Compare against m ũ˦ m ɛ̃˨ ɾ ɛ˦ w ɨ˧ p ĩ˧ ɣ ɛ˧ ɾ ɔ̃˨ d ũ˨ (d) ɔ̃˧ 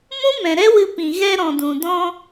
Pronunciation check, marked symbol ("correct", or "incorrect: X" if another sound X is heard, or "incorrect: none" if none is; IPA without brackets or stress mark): correct